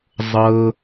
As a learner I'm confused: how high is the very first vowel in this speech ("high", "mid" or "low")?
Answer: mid